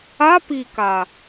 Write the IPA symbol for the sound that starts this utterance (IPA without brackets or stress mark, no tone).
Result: a